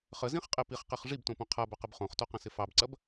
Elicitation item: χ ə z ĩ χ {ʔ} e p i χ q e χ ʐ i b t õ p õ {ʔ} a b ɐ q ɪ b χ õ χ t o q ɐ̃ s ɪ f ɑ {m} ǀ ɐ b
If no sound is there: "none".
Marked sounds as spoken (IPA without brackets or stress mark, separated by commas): qʼ, qʰ, b